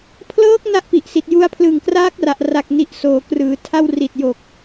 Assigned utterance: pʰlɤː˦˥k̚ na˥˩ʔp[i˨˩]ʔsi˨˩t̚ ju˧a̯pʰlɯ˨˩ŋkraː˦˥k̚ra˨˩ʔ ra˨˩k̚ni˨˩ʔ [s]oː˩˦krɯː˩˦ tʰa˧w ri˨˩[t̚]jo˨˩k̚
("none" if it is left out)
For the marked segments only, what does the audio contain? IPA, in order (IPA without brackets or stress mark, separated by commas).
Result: i˨˩, s, t̚